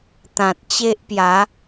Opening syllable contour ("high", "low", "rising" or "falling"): low